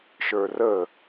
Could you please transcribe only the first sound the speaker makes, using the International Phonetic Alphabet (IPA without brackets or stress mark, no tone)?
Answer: ʃ